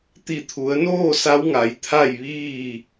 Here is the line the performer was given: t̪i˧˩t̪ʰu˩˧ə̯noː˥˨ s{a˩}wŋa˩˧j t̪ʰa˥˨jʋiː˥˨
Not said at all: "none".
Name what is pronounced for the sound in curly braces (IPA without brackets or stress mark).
a˧˥